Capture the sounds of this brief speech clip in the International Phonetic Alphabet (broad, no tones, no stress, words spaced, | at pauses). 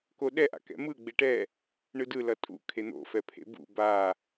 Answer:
koɗɛʔa̰ kɛ̰mɯ ɡ͡beʈɛ | ɳɯdɯ lʌtʼṵ kʰen̪o̰fɛpʰḛ bṵ ba